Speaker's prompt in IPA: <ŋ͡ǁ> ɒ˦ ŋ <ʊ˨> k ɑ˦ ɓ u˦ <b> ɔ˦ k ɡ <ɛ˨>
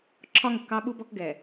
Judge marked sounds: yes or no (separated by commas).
no, yes, yes, yes